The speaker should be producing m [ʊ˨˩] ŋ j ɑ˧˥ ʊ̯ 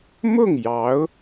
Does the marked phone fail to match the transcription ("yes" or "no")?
yes